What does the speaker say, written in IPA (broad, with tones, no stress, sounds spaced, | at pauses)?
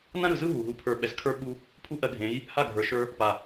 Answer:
n ã˦ ɾ ɯ˨ z ɯ˦ ɦ u˨ ɦ u˧ pʰ ə˞˧ ɓ ɛ˨ z kʰ ə˞˦ ɓ u˧ | pʰ u˦ ʔ ɜ˧ ɡʱ ẽ˨˦ j | h a˦˨ ɡʱ ə˞˨ ʃ ə˞˧ | p a˨